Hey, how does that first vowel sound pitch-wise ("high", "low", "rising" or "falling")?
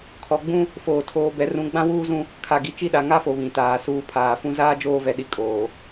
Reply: low